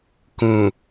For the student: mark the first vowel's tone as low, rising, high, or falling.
low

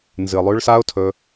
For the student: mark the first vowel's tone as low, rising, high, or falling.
low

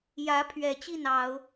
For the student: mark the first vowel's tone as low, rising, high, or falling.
rising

